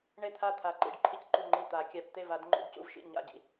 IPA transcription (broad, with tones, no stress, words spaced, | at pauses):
ɳe˥˩t̪ʰa˥˩ t̪ʰa˨˩˦ǃḭ˨˩˦ɖ ǃʰi˥˩cǃu˥˩ŋ͡ǃi˥˩ t̪a˨˩˦kʲa˨˩˦p t̪e˥˩va˨˩˦d ŋ͡ǃṵ˨˩˦dcṵ˥˩v ʃḭ˥˩ɲa̰˥˩ɟḭ˥˩